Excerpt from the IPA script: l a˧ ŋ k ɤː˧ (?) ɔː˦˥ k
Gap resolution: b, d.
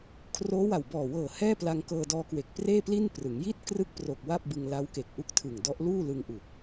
d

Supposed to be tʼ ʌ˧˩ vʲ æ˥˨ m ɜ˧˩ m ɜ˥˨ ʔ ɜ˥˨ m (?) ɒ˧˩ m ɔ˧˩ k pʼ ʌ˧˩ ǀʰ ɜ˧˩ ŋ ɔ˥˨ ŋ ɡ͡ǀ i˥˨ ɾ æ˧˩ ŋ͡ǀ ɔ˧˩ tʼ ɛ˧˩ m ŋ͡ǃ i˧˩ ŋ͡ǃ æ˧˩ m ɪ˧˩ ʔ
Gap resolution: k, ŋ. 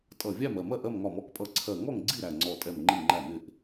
ŋ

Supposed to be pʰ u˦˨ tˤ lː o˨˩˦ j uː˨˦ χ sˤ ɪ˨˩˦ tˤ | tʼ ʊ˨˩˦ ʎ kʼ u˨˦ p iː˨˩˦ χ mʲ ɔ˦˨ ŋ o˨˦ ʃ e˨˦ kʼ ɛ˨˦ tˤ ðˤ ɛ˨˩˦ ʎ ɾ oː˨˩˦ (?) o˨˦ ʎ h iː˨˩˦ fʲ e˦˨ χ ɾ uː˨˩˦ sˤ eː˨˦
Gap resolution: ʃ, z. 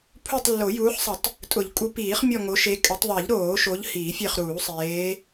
ʃ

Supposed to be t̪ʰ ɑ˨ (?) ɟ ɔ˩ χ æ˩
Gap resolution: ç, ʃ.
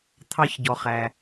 ç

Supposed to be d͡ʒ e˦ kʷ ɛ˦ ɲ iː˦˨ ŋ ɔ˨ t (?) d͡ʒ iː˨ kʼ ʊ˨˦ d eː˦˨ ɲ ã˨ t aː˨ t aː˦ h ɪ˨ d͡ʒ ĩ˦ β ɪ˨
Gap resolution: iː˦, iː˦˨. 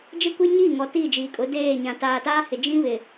iː˦˨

